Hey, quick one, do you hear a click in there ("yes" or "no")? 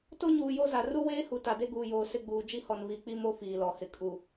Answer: no